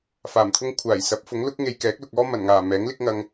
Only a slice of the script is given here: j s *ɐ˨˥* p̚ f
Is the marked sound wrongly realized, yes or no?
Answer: no